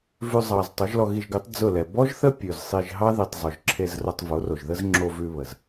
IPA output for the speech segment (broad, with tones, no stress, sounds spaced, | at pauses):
v ʉ˧ zˤ ɑ˨ z tˤ o˨˦ ʒ l ɔ˧ ɣ i˧ ʒ ɡ ʉ˨˦ tˤ d͡z ʊ˦˨ l ɛ˨ b ɔ˦ ʒ θ ə˦ pʲ ʉ˨ z sˤ i˧ ʒ ɦ ɑ˦ ð i˨ tˤ zˤ ʊ˨ ʒ ǁʰ e˧ z r ʊ˧ tˤ v o˨˦ r o˨ ʒ ð ə˦ z ŋ͡ǁ o˧ v ʉ˧ β ə˨ z